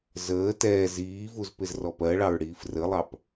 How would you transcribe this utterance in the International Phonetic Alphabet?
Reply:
zəː tɛː ziːvuz pɪzrɔpɜɭɑɹ ɽiːfrəlˠɑp

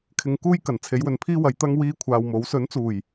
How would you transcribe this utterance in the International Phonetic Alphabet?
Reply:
kʰɪ˧ŋkuː˥jkɐ˨˩n t͡sʰe˨˥jwɵ˨npʰiː˥wɐ˨˧j t̪ɐ˥ŋ wiː˥kʷʰaː˧wmo˨˥w sɵ˨˥nt͡suː˨˩j

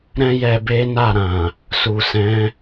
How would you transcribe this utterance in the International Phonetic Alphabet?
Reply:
ɾɛ̃˦ jɛ˧be˦ na˦˨ɾã˨ | su˨sɛ̃˨˦

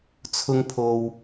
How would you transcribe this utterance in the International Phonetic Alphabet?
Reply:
t͡sʰʊ˥ŋpʰo˧w

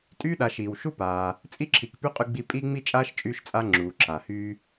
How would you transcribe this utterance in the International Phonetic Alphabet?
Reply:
tʼyː˥ɗa˨ʃiː˩wʃu˥ paː˨ | t͡sʼi˦ǁʰi˨kpy˦ qʼy˦ɡ͡bi˦ pʼi˥ ŋ͡mi˥t͡ʃʼaː˥ʃt͡ʃʼyː˦ʃt͡sʼa˦ ŋ͡ǁuː˩ǁʰa˩hyː˦

